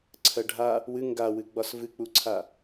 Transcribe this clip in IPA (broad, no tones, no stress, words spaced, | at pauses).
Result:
ǀʰɜɖʱa | wɨ ŋɡawɨɡ͡bɒs vɨk͡puǀʰa